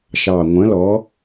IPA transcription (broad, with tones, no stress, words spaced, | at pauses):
ʃɑ˨˩ŋʷə̃˨˥ lɔ˨˥